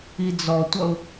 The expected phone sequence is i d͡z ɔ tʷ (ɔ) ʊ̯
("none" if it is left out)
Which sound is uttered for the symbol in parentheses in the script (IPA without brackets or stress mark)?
ʌ